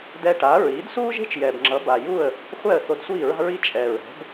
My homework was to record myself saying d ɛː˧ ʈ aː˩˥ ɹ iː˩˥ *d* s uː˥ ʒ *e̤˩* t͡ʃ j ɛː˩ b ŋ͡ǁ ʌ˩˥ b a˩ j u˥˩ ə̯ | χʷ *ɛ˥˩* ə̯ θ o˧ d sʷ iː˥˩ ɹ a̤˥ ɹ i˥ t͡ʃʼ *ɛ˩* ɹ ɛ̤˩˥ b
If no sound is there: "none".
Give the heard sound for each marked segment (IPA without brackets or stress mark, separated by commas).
d, e̤˥, ɛ˥˩, ɛ˩